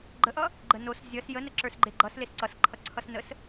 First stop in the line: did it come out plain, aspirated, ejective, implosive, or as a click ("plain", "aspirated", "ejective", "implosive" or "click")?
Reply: click